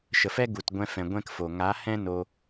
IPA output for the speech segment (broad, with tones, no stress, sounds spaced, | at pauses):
ʃ ə˨ f ɛ˦ ɡ u˨ t ɡʷ ɛ̃˧ f ɛ̃˨ ɡʷ ɛ̃˦ k f o˨ ŋ a˨˦ h ɛ̃˦ n o˧